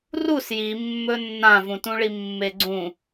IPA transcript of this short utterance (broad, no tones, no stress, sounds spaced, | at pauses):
r u s j i mː ɵ nː ã v ũ t ũ ɭ i mː e ɡ͡ǀ ũ